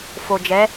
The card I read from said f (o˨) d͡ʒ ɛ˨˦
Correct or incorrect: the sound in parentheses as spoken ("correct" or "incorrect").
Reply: correct